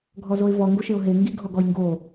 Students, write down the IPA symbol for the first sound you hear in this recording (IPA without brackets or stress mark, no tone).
ɡʱ